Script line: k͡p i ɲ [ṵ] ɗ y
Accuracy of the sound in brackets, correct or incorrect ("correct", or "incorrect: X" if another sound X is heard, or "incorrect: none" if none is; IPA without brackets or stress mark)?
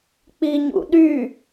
correct